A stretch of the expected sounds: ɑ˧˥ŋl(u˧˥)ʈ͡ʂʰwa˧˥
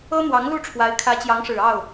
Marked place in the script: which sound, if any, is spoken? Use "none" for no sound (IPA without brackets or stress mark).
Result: u˥˩